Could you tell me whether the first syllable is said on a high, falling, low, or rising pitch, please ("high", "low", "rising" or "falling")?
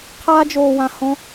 high